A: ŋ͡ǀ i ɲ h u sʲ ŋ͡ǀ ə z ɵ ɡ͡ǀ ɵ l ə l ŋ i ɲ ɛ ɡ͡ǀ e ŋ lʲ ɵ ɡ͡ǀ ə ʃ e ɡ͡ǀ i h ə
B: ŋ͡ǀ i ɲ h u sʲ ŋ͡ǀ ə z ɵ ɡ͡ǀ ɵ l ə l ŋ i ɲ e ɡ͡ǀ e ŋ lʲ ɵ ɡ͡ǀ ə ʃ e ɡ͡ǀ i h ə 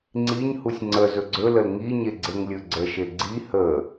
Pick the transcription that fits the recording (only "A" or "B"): B